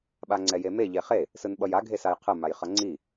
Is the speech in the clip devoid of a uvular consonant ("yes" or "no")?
no